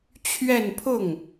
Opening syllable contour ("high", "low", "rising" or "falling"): falling